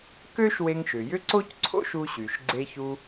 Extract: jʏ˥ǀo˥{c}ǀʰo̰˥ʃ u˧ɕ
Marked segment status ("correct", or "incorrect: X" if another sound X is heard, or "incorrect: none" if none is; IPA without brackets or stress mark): correct